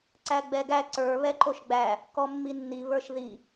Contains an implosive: no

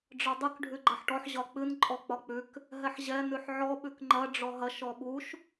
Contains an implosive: yes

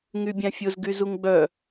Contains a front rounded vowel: yes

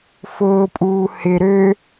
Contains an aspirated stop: no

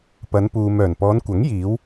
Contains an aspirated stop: no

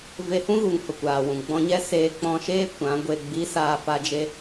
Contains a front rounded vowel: no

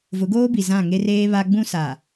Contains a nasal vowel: yes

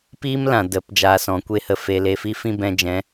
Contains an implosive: no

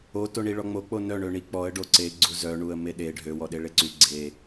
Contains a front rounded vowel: yes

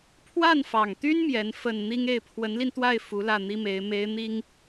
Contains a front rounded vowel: yes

